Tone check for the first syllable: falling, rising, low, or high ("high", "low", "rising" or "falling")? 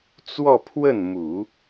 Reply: falling